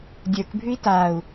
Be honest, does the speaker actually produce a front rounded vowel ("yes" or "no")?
no